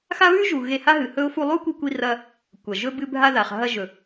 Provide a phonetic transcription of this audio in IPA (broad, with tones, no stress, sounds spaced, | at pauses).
x a˦ β ʉ˦ ʒ u˨ ɣ e˧ h a˦ ɦ ɨ˨ h ɵ˦ ʊ̯ f u˧ lˠ u˦ kʷ i˧ kʷ i˧ r ɐ˧ | kʷ ɐ˨ ʒ ɵ˦ b ɨ˧ bʱ a˧ ð a˨ χ ɦ ɐ˧ ʒ ɵ˨